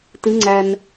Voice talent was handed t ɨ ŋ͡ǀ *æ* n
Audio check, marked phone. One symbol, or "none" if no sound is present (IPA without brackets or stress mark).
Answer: æ